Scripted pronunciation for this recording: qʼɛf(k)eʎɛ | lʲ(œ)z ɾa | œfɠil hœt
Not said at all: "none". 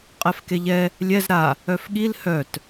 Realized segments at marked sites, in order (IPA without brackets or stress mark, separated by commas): k, ɛ